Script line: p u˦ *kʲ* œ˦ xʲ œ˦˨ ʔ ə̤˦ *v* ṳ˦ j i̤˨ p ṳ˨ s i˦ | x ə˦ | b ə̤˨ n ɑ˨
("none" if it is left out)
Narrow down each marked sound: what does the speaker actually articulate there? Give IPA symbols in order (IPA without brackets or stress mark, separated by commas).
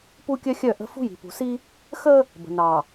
kʲ, f